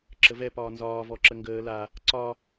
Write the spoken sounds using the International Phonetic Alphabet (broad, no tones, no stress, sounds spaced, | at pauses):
ǁ ə v ɛ p ɒː n z ɒː v ɔ ǁ ə ŋ ɡ əː l a | ǀ ɒ